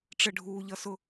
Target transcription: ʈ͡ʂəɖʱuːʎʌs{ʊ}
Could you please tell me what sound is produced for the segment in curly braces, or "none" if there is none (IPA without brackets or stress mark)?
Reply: ʊ